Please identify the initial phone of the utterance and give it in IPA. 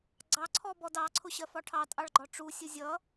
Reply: ɡ͡ǀ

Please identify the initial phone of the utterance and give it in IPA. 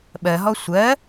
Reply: ɓ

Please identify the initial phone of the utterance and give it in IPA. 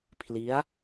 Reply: pʰ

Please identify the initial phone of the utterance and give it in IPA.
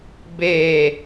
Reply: b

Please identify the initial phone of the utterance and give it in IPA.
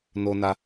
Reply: n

